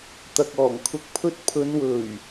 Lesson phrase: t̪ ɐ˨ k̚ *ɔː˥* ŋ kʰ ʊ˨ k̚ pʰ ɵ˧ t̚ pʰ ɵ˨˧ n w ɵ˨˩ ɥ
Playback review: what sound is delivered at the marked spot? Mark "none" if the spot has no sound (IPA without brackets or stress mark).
ɔː˨˩